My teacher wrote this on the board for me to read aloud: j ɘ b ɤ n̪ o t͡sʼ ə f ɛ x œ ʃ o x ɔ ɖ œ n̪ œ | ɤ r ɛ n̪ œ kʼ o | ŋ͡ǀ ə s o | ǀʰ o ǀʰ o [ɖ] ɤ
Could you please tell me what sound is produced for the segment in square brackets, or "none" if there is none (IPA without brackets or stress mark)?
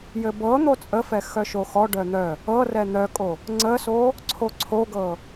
ɡ